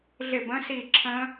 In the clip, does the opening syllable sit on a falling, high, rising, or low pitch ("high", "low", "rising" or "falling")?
falling